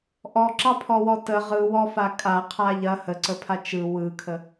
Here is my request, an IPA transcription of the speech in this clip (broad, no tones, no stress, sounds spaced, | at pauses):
ʔ ɔ ǁ ɑ pʰ ɔ w ɔ t ə ʁ ɯ w ɔ f a kʼ a qʰ a ʎ ɐ h ə ǀ ə pʰ a t͡ʃ ɯ w ɯ kʰ ə